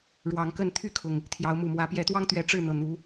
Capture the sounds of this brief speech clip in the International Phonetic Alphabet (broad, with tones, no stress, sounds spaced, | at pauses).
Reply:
ɻ w ɑ˨˦ ŋ k ə˥˨ n t̪ʰ y˥˨ kʰ ʊ˩ ŋ | t̪ʰ j ɑ˨˦ ʊ̯ m u˨˩ m w ä˨˦ p j ɛ˨˦ t̪ w ɑ˦ ŋ t̪ ɥ ɛ˨˦ ʈ͡ʂ ɻ̩˥˨ n̪ ɤ˨˩ n̪ u˨˦